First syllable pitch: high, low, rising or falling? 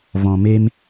low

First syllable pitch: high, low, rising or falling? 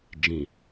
low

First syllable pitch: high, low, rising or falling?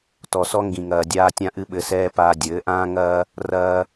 low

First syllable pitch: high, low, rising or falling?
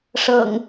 low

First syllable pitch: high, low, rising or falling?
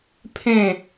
falling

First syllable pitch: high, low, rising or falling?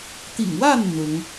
low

